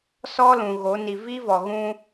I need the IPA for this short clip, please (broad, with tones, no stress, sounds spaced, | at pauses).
s ɔ˦ l ũ˨ ɣ o˨˦ n i˨ v i˦ v ɔ˨ ɣ ũ˦